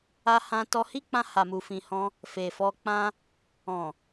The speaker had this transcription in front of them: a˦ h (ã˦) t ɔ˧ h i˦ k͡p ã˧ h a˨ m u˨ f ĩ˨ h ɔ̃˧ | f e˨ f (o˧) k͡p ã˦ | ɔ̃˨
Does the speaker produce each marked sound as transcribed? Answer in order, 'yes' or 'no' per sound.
yes, no

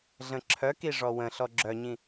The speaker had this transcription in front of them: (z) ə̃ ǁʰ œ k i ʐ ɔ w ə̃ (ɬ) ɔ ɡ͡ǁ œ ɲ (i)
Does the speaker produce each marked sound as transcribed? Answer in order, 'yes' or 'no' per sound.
no, yes, no

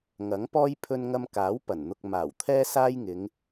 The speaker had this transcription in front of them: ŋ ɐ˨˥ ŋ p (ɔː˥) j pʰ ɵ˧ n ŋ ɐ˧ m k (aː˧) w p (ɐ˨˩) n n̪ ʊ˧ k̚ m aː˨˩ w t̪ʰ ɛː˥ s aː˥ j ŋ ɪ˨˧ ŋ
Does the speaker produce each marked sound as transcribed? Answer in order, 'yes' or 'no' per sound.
yes, no, yes

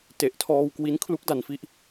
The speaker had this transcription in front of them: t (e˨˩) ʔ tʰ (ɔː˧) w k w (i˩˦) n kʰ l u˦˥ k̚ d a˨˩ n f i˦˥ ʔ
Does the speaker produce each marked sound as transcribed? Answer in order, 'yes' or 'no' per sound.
yes, yes, no

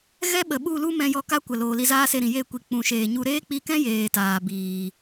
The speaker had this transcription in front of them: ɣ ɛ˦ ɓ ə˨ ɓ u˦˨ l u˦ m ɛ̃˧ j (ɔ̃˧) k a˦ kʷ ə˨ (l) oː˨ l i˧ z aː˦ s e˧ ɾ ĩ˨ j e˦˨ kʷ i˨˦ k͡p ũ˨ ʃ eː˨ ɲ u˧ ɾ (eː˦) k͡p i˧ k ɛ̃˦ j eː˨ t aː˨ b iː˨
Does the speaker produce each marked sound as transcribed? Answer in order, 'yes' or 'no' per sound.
no, yes, yes

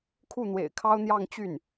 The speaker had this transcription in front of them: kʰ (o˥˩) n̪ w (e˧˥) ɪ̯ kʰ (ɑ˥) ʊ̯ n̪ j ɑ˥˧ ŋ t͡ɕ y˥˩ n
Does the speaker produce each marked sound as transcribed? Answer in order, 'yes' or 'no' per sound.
no, no, yes

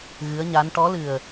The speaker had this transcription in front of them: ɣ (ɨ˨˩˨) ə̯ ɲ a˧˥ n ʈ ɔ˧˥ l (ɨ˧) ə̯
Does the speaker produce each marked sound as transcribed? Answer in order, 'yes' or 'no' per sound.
no, no

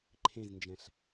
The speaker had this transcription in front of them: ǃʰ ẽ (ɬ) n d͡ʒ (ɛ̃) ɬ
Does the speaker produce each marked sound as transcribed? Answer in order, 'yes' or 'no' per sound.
no, yes

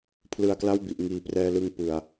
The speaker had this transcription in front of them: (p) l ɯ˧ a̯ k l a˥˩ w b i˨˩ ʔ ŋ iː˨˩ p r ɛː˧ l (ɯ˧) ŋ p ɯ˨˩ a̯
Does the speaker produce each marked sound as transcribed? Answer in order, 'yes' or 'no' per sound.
no, yes

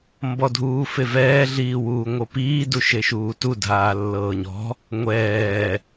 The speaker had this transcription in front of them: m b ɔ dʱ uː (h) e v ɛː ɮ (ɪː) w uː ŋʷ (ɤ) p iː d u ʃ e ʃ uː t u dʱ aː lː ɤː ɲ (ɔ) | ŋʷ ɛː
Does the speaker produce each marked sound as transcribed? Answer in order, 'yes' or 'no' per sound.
no, no, yes, no

